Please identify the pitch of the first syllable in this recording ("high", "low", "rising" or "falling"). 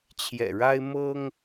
low